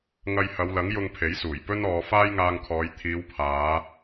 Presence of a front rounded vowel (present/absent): absent